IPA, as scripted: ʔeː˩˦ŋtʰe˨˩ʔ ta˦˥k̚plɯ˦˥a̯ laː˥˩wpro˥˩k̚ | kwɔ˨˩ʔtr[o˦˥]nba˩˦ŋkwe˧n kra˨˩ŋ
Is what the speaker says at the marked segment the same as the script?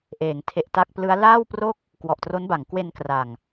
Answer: yes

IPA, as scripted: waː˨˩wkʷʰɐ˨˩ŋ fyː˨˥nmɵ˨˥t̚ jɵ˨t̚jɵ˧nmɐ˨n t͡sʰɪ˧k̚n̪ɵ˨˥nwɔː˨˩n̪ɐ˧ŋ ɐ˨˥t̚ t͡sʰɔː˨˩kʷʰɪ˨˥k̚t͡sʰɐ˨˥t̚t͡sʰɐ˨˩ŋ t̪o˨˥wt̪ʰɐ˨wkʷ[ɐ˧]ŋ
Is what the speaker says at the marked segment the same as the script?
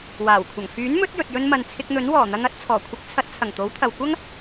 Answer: no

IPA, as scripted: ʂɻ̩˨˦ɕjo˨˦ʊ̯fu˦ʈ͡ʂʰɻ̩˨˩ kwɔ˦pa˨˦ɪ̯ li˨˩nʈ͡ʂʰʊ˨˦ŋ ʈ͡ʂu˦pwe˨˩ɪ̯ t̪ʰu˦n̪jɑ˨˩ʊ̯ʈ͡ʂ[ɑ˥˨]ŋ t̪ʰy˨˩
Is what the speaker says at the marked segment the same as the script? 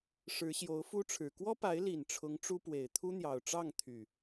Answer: yes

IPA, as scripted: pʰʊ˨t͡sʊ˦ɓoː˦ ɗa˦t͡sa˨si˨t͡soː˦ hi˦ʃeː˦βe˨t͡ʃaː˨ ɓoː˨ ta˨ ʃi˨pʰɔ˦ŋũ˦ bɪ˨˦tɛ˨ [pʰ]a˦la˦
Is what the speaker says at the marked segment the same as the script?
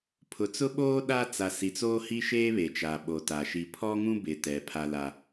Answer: yes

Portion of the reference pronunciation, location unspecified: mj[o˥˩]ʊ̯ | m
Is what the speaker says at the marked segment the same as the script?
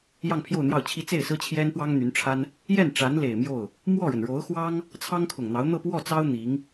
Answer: yes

